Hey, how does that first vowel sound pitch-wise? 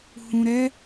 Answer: low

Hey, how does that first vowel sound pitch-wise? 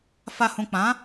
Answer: low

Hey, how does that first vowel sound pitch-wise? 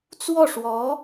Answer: falling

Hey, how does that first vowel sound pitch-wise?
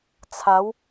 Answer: rising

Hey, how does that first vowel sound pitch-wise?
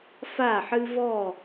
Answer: falling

